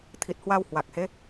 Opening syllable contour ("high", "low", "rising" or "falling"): low